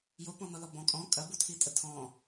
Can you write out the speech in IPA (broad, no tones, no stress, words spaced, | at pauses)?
jopɔ̃nɔlɔ bɔ̃ kʼɔ̃ kʼɐbutʰitʼə tʰɔ̃